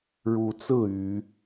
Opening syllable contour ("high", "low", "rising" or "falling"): rising